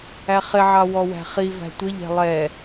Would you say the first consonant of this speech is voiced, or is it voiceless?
voiceless